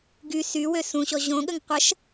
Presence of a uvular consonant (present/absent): present